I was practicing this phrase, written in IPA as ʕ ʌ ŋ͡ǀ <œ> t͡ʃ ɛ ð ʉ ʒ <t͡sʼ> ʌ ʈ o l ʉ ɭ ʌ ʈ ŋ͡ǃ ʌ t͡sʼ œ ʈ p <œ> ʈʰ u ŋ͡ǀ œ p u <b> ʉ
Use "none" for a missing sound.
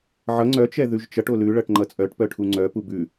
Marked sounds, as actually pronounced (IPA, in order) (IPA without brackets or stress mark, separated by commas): œ, t͡ʃ, œ, b